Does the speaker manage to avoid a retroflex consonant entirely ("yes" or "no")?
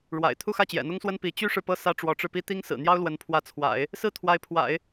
no